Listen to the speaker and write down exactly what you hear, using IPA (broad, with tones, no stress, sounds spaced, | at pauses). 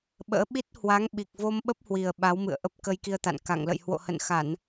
ɓ ə̰ː˧˥ ɓ i˦˥ t̚ h w a˨˦ ŋ ɓ i˨˩ k̚ v o˧ m ɓ ə˦˥ p̚ h w i˨˩ ə̯ ɓ a˨˦ w m ɨ̰˧˨ ə̯ ʔ ə˦˥ p̚ k ə˧ j k i˧ ə̯ t̪ a̰˧˨ n k a̰˧˨ ŋ l ə̰˧˨ j h w o̰˧˨ h ə̰˧˨ n x a˧˩˨ n